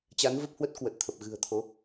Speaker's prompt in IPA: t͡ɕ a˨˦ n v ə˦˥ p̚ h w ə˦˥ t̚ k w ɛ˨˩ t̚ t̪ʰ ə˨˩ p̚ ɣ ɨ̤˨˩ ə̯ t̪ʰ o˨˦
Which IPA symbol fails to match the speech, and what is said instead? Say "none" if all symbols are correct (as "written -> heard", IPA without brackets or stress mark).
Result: ɛ˨˩ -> ə˨˩